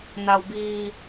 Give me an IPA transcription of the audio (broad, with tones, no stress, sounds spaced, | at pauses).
n a˧ w b iː˧